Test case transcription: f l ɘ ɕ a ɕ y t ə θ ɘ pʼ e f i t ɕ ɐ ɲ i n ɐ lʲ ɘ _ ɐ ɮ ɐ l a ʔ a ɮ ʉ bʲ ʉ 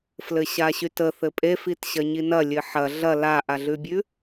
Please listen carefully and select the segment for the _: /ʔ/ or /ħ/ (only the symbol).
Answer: ħ